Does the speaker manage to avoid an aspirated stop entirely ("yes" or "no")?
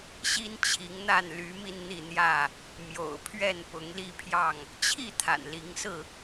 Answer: no